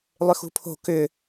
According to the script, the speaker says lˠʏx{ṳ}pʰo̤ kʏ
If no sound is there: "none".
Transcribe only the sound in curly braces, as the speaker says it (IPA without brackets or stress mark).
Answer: ṳ